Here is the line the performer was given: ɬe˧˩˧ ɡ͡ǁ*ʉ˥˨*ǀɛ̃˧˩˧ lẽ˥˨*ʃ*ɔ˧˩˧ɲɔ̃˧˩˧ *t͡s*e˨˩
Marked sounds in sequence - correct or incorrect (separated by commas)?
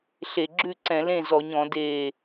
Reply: correct, incorrect, incorrect